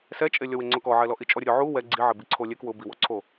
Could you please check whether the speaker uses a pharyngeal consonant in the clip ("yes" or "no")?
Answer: yes